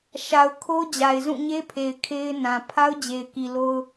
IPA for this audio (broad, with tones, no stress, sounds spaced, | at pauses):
ʃ a˨ ʊ̯ kʰ o˦ d͡ʑ a˨ ɪ̯ z ũ˦˨ ɲ e˦ pʰ e˨ ɪ̯ kʰ e˦ ɪ̯ n ã˨ pʰ a˦ ʊ̯ d͡ʑ e˨ ɪ̯ k i˨ l o˦ ʊ̯